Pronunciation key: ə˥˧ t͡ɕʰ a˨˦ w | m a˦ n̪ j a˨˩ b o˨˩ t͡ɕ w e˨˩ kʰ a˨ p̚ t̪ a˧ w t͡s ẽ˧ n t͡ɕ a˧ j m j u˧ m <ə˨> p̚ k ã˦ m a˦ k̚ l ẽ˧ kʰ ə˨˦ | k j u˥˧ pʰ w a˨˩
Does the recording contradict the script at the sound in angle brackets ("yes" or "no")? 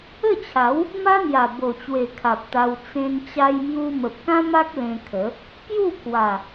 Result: no